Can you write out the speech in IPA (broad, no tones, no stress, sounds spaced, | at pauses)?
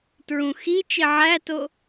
t ɹ ũ x i t͡ʃ i ʕ æ t o